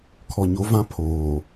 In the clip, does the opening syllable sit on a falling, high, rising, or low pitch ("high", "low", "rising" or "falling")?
low